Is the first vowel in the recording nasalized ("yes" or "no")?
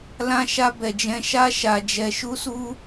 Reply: yes